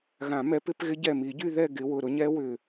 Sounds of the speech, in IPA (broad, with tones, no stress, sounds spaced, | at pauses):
ɣ ã˨˩˦ m ɛ˨˦ p ɪ˨˦ p ɣ ɪ˦˥ ɟ ɛ˧˩ m i˨˩˦ ɟ y˥˨ ð ɛ˥˨ ɡ ɪ˨˦ w ʊ˧˩ ɾ ʊ˦˥ ɲ ɛ˦˥ w ʏ˧˩